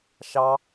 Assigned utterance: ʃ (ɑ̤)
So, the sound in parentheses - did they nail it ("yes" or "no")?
no